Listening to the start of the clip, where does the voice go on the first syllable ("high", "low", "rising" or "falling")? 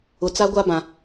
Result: low